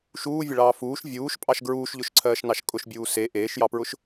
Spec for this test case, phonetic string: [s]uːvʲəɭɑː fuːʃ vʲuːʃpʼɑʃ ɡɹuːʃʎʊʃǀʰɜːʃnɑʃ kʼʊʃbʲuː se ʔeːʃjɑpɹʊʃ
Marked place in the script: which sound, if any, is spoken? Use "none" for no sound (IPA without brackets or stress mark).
ʃ